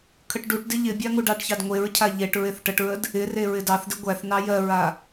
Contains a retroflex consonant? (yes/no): yes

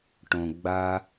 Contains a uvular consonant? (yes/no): no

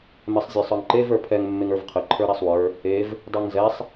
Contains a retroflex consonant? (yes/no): no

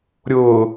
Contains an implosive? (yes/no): no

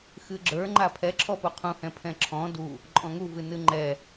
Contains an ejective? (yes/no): yes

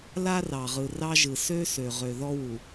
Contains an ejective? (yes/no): no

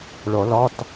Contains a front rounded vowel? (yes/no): no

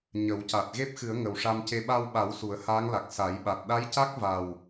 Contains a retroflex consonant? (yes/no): yes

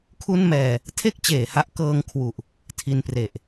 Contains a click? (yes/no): no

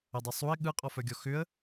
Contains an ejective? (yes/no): yes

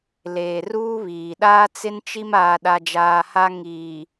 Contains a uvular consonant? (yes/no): no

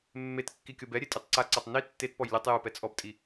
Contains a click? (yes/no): yes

